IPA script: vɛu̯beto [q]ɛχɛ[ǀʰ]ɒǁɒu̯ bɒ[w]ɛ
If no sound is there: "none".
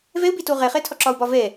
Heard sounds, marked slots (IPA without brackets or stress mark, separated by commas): ʁ, tʰ, v